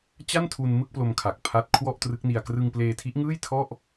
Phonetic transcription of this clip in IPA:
t͡ɕ a˥˩ n tʰ u˧ n m ɯ˥˩ k̚ p l o˧ m kʰ a˨˩ k̚ pʰ a˦˥ t̚ kʰ w ɔ˥˩ ʔ t r ɯ˦˥ k̚ n i˧ a̯ k r ɯ˧ ŋ p l eː˧ tʰ i˦˥ ʔ ŋ ɯː˥˩ j tʰ ɔ˥˩ ʔ

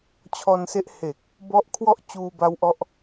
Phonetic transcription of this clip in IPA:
t͡ɕʰ ɔː˧ n s e˦˥ ʔ h e˨˩ k̚ | b ɔ˦˥ ʔ kʰ w ɔ˥˩ ʔ t͡ɕ uː˧ b a˦˥ w ʔ ɔ˦˥ ʔ

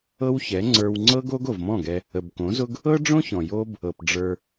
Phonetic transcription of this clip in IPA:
ɤ˦ w ç ɛ˨˦ ŋ͡ǀ ə˞˧ w ŋ͡ǀ ɤ˦ ɡ o˦ ɡ o˨ v m ɔ̃˦˨ ɡ ɛ˧ | ə˨ b k õ˨˦ z ʊ˦ ɡ | ɤ˦ ɖ͡ʐ õ˦ ç ɔ̃˨ j o˦ b | ɤ˨ p ɖ͡ʐ ə˞˧

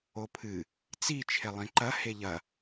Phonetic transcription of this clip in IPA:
o pʰ ɨ | t͡s i t͡ʃʰ e lˠ ĩ ǃ ɐ h e ʎ ɐ

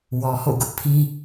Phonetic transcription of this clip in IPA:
w ɔ˨ h o̰˦˨ ɡ ʊ˦ ʔ pʰ ĩ˦

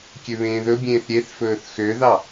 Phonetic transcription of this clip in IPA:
kʲ ø β ẽː ð ɵ bʲ ẽː θ ɾʲ e θ f ɵː θ x ø ð ɑ

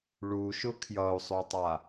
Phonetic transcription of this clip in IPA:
ɭ u ʃ ʊ kʰ j ʌ u̯ sˤ o tˤ a

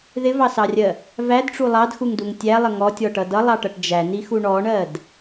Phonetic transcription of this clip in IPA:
ð ɪ v ɑ s ɑ rʲ ɜ | v æ d ʈ͡ʂ u lˠ ɑ d x u ŋ d u ŋ tʲ æ lˠ ə ŋ ɔ tʲ ɔ ʈ ʌ d ʌ lˠ ɑ ʈ ʌ ʈ d͡ʒ æ n i x u ɳ ɔ ɳ ɜ d

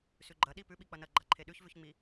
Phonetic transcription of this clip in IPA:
s ʉ ɡ͡ǃ ɐ ɗ i p ʉ ɓ i k͡p ɐ n ɐ ɡ͡ǃ a ǃʰ e ɗ ʉ ç v ʉ ç ŋ͡m i

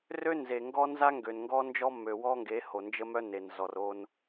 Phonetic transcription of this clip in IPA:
r ø˦ n z e˨ ŋ ɡ ɔ˦ n z a˦ ŋ ɡ ø˨ n ŋ ɡ ɔ˦ n d͡ʒ ɔ˦ mː ø˨ w ɔ˦ ŋ ɡ e˨˦ h o˨ n d͡ʒ ə˦ m œ˦ n e˨ n z ɔ˨ r o˦ n

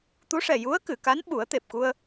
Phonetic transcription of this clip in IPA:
t̪ u˧˥ ʂ ɛ˨˩ j u˧˥ ə̯ k ɨ˨˩˨ k a˧˥ n ɓ u˨˩˦ ə̯ t̪ e˨˩ p̚ k u˧ ə̯

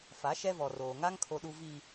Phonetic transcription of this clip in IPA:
f a˨˦ ʃ ɛ˦ v ɔ˨ r oː˨ ŋ a˦ ŋ kʰ o˨ ɗ u˨ v i˨

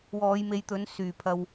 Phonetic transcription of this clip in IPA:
w ɔː˨˧ j m e˨˧ j t̪ ɵ˨˥ n s yː˨˩ pʰ ɐ˨ w

